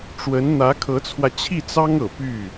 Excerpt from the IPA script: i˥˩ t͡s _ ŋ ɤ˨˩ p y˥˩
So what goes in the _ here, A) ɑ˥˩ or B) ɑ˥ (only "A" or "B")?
B